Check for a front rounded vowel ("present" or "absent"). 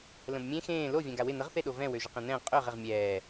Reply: present